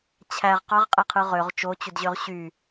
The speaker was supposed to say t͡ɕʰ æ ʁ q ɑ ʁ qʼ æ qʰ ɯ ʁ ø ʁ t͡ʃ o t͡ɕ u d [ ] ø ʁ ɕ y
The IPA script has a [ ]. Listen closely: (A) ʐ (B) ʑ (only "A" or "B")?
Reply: B